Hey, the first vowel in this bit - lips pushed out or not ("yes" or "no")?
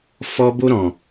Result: yes